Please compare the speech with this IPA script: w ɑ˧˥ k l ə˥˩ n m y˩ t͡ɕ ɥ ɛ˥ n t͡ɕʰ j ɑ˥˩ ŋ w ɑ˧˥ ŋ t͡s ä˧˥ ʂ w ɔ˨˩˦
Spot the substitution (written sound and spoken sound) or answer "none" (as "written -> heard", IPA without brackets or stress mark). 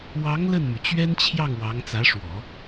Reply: k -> ŋ